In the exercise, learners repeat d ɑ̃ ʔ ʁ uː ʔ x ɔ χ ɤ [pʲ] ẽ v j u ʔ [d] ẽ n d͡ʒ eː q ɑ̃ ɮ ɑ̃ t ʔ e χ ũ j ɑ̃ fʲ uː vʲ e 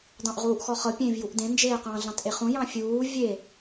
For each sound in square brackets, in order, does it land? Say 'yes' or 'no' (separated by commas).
yes, yes